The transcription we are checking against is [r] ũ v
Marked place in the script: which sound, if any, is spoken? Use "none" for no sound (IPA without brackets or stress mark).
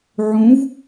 ʕ